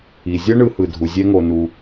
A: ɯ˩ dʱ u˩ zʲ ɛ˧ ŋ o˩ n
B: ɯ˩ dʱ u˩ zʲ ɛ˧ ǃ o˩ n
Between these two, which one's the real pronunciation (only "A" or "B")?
A